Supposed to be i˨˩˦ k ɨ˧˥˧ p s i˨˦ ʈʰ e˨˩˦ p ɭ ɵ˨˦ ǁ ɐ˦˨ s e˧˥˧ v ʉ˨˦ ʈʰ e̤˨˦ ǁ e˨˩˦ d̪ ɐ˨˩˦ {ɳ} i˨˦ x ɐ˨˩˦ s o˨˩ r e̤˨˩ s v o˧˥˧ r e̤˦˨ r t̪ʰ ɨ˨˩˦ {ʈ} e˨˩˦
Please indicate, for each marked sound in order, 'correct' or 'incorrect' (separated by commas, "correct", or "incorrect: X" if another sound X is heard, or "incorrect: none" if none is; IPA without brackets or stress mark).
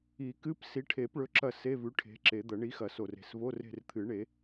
correct, incorrect: ɳ